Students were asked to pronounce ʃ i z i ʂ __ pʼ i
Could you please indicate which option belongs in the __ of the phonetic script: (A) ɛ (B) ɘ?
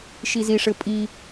B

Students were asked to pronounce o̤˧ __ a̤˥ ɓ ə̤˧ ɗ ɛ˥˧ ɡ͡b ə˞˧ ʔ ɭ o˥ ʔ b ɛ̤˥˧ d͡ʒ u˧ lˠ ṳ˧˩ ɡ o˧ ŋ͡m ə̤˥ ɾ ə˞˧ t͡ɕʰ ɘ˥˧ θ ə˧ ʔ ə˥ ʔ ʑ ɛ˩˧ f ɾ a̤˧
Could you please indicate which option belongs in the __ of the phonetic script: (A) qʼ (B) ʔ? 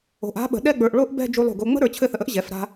B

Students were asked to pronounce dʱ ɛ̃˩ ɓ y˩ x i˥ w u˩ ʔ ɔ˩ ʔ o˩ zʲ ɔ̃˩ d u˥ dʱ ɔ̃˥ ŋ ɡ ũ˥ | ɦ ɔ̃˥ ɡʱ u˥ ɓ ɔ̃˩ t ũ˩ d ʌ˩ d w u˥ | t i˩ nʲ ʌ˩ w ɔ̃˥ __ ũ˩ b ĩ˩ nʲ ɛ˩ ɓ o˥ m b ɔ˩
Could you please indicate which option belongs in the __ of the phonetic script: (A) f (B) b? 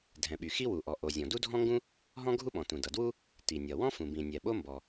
A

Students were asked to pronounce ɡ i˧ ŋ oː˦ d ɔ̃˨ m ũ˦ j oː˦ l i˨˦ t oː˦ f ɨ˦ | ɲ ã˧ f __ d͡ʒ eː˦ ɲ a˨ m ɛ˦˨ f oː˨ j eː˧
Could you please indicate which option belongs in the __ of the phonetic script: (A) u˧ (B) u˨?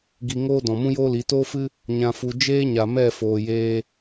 A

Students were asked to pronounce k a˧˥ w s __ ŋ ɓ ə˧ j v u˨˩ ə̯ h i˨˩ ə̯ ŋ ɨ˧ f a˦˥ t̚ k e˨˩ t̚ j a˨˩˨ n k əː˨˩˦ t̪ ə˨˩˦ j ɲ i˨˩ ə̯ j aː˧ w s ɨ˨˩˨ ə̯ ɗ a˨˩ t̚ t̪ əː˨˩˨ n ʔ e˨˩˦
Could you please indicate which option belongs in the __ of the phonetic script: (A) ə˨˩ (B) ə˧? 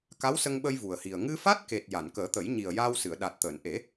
B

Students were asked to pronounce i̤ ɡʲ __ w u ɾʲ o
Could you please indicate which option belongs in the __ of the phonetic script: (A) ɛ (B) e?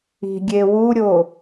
B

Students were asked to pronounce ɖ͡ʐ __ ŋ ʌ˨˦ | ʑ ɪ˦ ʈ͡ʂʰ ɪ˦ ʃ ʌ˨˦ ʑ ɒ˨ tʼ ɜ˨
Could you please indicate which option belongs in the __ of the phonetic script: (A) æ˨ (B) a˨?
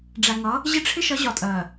A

